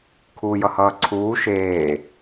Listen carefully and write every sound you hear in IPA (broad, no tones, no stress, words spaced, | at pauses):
kʰuːjʌhʌːǀʰuː ʃeː